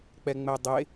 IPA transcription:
k͡pɛŋ͡mɛdˤe

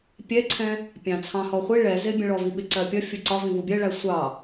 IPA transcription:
pʲɛǀʰɛ̃ | pʲɑ̃t͡sʰɑ̃hɔχʷi ɭɛ zɪbʲə̃ɭɔvi ɓɪǀɜpʲʌ fʲʊǀɒvĩ vubʲɜɭæ sʷɑ

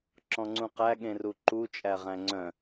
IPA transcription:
ǁɔ̃ŋ͡ǀũqæ ɠẽruǃu t͡ʃʼæʁæ̃ŋ͡ǀœ̃

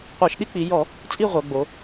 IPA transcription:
qʷɜ˧˩˧ʃɗi˥˧k͡pi˩˧jɔ˧˩˧ | t͡sʼi˥˧ʁʷœ˩˧ɡ͡bo˩˧

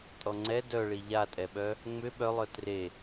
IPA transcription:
tʼɔŋ͡ǀɛ dœɭi ʎatʼɛɓœ | ŋ͡mʏ ɓœlˠœ tre

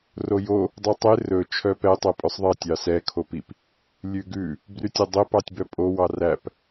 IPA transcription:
rojo | dˤʉtˤe rɵ t͡ʃʰœpɛ tˤopʼœsˤðˤɛ tʲɑsɛ kʰopip | lʲʉɡʉ | brytʲodˤe pɑtʲbœpʼo wɑræp

